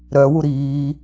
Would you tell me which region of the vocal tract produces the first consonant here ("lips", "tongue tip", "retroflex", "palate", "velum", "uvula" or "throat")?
tongue tip